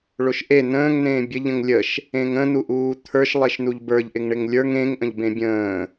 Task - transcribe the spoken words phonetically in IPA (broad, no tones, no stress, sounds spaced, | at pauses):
ɭ o ʃ ʔ e n ə̃ː ŋ n̪ ẽː bʲ ə ʎ ə̃ ŋ lʲ ə ʃ | ẽ ŋ ə̃ n̪ u ʔ uː t̪ʰ ə˞ ʃ lˠ e ʃ n u ʎ b ə˞ ʎ ʔ ɪ ŋ ɳ ɪ ŋ lʲ ə˞ ŋ ẽ ŋ ʔ ə̃ ʎ b ẽ bʲ ə̃ː